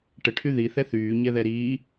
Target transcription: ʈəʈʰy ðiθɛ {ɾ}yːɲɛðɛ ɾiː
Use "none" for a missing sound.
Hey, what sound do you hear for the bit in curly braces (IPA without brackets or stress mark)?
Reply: θ